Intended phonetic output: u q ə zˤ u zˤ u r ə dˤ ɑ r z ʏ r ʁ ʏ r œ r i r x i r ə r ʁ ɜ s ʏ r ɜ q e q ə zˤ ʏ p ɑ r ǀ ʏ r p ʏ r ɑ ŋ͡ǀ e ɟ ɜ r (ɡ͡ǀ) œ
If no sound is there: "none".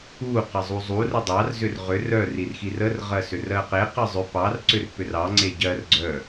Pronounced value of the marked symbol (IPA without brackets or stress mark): ɡ͡ǀ